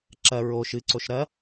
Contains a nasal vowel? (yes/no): no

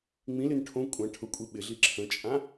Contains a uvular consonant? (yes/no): no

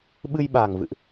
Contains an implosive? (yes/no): yes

